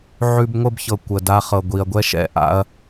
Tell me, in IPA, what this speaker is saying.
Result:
ʕʉ˧bŋʷə˦˨bçɤ˨ kʷə˨da˧χɤ˨ɡʷi˨ɐ̯ ɡʷɛ˦ʃɛ̰˧ ʔa̰˧ɐ̯

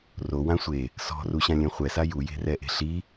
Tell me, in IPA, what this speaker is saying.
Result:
rowã sʷe | sɔ̤ruɕãlʲɛ̃ χʷɛsa juje̤rɛʔe̤ ɬi

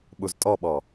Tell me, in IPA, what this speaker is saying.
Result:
ɓuztʼɔɓɔ

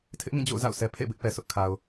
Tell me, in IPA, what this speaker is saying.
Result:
tʰɪ˦ʔŋĩ˦˨ d͡ʑo̰˦˨ʊ̯za̰˦˨ʊ̯sʰɛ˨ pʰḛ˦˨bɪ˦ʔpɛ˨sʰʊ˦ʔ kʰa˨ʊ̯

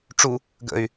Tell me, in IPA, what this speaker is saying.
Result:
ʈ͡ʂu | ɡə̰y̯

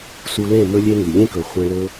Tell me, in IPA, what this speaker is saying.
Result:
su˧lẽ˦˨ mɵ˦lʲe˦ŋy˨ lʲẽ˦kɵ˨ χʷẽ˧lɵ˦

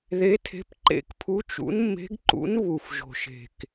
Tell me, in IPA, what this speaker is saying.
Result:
ðe˧˥tʰe̤˧˥pǃḛ˧˥kpʰu˧˥ t͡ʃṵ˧˥nmːe̤˧˥ɡǃṵ˧˥n βu˨˩fʒo̤˨˩ʃe̤˨˩k

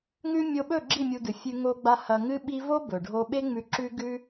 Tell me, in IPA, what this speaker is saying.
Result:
ŋʉ˦ mʲo˧ɓɵ˦˨ ɡ͡ǁi˦˨mʲu˧dɨ˨fʲʉ˧ ŋo˧ɡ͡ba˧ hɐ˧ŋɨ˦ɓi˦ vo˦bɵ˨ɖʱo˧ɓe˦ ŋ͡mʉ˧ǁʉ˦ɡʉ˦

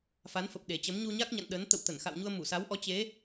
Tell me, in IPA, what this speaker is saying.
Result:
fa˨˦nfə˨˩p̚ ɗe˨˩t͡ɕə˨˦m ɲu˧ɲa˦˥k̚ɲa̰˧˨n ɗə˨˦n t̪ə̰˧˨wt̪ə˧˩nxa̰˧˨w ɲu˧ə̯mu˧˩sa˨˦wʔɔ˨˦ t͡ɕe˨˦

